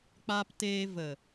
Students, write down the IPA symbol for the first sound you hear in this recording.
k͡p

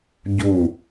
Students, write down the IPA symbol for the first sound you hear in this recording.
ɟ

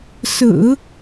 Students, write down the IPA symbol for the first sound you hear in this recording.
s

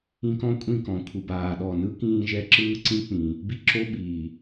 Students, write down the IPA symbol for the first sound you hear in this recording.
ĩ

